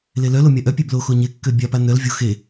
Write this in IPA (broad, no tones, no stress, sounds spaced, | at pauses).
l e l œ l o mʲ a ʔ œ pʲ e b l o x o ɲ e kː ø bʲ a p a n œ l vʲ o x e